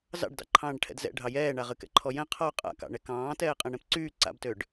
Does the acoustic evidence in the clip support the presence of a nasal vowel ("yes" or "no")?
yes